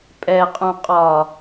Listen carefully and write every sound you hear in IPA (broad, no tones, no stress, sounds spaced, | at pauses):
pʼ ɛ qʼ ũ qʼ ɒ